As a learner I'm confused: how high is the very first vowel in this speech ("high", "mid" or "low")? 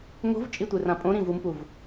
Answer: mid